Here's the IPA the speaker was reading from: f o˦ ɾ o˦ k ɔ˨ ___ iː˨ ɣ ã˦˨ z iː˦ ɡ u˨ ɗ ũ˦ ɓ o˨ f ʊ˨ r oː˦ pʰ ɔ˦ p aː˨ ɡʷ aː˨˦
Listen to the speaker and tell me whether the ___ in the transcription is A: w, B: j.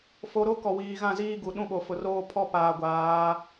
A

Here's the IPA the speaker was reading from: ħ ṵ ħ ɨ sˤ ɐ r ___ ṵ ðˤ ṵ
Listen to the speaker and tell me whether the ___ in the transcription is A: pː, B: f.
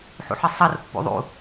A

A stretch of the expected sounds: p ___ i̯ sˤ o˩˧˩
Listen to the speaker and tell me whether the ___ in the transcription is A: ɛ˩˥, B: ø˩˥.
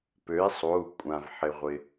B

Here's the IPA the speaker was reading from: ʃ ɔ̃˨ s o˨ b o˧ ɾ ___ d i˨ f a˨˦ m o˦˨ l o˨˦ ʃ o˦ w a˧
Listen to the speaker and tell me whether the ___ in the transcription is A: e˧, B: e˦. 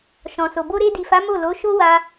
A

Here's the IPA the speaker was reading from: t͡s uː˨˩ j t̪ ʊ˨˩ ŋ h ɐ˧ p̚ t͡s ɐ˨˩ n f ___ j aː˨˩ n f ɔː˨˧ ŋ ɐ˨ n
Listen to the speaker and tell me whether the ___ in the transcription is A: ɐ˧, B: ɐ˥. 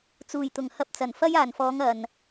B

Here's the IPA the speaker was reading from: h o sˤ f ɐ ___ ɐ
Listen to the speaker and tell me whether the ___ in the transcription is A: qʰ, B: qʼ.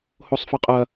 B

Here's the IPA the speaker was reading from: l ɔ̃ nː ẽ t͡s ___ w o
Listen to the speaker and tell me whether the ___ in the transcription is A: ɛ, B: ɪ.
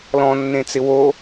B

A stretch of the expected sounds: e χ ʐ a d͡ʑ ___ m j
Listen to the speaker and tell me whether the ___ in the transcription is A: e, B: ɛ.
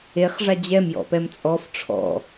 B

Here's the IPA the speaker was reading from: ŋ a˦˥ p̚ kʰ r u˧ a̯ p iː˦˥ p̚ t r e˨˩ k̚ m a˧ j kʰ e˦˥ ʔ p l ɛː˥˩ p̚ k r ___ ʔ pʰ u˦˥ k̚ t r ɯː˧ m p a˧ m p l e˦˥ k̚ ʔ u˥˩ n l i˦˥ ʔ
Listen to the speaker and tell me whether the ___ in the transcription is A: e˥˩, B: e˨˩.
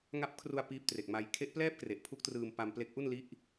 B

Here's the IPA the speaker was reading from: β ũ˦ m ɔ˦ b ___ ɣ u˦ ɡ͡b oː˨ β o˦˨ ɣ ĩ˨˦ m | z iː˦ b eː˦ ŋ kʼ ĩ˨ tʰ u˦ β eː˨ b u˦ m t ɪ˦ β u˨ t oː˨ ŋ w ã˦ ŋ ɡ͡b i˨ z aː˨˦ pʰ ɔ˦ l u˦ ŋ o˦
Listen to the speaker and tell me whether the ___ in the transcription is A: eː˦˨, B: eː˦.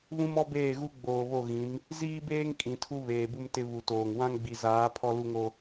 A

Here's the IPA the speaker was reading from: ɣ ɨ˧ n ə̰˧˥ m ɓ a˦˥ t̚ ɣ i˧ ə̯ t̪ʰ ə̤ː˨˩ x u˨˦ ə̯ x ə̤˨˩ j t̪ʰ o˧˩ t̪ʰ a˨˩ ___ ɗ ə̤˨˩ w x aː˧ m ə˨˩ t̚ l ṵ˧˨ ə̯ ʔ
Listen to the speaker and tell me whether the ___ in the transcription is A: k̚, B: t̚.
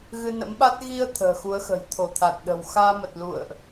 B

